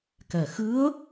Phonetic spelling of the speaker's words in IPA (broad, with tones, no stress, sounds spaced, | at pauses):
k ɛ˨˩ x ɨ˧˥ ə̯